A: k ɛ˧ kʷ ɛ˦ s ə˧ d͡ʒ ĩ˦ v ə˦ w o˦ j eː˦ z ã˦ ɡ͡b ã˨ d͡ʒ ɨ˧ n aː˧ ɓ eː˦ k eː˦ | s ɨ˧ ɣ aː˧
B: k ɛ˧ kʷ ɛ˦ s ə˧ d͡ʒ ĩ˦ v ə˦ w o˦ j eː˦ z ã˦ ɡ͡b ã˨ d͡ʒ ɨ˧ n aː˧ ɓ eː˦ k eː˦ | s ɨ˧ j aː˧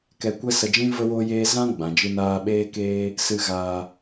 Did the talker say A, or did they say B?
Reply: A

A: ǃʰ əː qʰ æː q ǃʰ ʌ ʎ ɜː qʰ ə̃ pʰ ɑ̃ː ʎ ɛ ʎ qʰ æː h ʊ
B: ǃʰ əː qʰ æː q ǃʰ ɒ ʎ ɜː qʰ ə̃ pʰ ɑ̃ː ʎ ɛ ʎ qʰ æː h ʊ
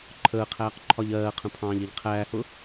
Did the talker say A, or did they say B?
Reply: B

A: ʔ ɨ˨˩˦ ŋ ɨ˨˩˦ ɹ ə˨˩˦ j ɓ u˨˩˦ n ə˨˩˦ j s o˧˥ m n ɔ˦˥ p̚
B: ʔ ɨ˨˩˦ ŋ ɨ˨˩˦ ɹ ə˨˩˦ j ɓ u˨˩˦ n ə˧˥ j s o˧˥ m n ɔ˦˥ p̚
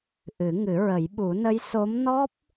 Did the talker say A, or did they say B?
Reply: B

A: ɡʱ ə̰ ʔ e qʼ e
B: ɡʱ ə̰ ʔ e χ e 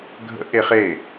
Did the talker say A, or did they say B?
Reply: B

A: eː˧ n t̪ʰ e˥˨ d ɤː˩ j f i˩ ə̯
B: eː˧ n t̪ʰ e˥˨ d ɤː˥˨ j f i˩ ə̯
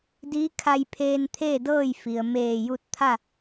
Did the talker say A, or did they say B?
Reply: B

